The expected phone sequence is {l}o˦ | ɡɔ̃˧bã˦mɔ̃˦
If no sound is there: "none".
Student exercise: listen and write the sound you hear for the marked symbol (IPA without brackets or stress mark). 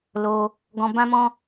l